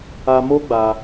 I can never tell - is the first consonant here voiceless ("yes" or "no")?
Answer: no